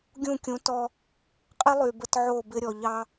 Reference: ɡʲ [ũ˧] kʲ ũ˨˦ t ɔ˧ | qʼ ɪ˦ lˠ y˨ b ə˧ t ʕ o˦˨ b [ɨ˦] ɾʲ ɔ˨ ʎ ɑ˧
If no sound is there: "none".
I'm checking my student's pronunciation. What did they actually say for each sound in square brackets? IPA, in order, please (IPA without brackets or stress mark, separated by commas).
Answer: ũ˦˨, ɪ˦